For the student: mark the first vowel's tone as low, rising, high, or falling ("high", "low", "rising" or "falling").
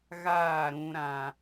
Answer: falling